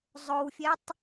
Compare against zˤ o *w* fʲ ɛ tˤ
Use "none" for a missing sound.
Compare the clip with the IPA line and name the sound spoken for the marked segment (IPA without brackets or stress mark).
w